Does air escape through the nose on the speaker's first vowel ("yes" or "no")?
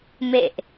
no